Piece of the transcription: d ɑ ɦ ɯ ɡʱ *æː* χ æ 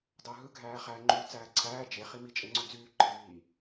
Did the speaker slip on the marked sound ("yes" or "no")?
no